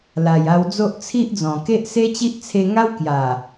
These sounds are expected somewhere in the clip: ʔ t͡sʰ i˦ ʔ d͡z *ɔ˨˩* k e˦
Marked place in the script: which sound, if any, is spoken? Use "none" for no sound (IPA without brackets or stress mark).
ɔ̃˨˩